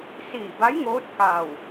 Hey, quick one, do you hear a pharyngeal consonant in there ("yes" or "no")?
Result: no